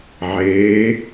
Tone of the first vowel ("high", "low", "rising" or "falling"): rising